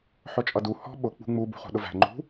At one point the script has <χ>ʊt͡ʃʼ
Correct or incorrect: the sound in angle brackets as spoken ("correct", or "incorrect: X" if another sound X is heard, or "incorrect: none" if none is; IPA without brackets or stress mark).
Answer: incorrect: ħ